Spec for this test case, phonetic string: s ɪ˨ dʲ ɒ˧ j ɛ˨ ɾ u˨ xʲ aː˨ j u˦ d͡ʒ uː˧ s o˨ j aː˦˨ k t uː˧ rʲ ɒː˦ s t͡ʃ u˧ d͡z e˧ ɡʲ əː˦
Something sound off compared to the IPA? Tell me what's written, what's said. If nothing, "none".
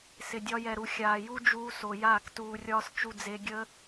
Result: none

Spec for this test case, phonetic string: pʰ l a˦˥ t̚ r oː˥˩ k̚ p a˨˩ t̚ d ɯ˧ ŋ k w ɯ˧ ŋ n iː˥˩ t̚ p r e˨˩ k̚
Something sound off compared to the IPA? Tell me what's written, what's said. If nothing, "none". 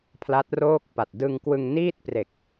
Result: none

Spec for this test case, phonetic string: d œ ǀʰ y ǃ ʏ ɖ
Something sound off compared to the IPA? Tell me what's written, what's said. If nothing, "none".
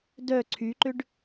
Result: none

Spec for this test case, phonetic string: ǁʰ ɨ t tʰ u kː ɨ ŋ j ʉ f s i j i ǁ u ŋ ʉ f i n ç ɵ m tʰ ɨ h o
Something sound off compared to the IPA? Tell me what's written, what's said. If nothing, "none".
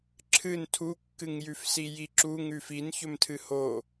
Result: t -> n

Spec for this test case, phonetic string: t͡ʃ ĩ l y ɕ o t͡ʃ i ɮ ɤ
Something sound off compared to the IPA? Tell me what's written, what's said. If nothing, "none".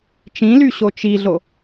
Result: ɤ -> o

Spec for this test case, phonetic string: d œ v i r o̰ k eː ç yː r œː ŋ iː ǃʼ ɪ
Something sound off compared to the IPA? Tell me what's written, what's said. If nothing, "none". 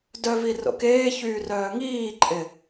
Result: none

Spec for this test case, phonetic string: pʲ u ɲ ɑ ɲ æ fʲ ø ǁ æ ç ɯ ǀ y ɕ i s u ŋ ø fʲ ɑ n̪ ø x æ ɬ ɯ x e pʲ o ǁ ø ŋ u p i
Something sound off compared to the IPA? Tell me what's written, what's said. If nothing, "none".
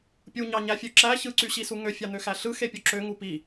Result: none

